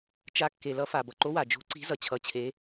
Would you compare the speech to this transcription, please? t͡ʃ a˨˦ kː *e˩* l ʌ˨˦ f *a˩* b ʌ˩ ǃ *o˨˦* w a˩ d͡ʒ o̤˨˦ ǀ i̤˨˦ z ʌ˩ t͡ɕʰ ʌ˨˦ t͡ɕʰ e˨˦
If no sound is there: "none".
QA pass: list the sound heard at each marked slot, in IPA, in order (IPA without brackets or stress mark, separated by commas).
e˩, a˩, o˨˦